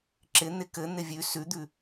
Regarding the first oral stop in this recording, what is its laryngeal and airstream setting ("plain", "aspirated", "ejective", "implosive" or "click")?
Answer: click